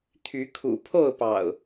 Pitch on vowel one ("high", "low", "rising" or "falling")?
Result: rising